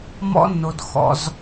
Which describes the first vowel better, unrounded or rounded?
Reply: rounded